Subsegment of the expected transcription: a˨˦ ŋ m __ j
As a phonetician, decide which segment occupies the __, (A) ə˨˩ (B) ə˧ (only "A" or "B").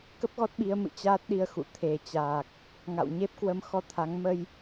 B